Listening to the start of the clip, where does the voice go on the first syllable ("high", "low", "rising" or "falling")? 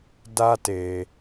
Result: high